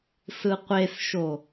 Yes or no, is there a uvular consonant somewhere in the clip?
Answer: yes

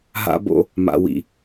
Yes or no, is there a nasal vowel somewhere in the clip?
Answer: no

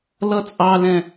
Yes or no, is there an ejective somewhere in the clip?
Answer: yes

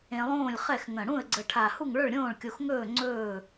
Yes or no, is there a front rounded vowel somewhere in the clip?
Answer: no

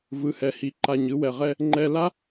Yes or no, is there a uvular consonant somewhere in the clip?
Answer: yes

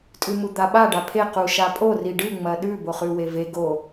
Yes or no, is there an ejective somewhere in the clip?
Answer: yes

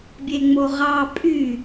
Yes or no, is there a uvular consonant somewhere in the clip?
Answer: yes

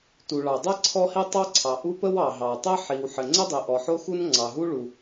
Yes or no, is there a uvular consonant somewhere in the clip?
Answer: no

